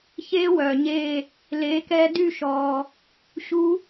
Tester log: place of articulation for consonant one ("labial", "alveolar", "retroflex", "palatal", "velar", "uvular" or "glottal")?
palatal